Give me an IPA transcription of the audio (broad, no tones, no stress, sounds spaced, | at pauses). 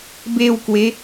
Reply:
b e w k w e